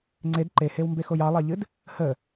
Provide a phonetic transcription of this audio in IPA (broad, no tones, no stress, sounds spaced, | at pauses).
ŋ͡ǀ e d ǃ e h e w m b e x o j ɑ lˠ ɑ ʎ ɨ d | h ə